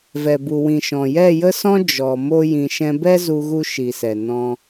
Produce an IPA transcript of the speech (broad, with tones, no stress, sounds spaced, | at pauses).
v ɛ˨ b u˨ w ĩ˨ ʃ ɔ̃˨ j ɛ˦˨ j ə˦ s ɔ̃˦ d͡ʒ ɔ˨ m o˦ j ĩ˧ ʃ ɛ̃˧ b ɛ˦ z u˧ ɣ u˧ ʃ i˨ s ɛ˨ n ɔ̃˧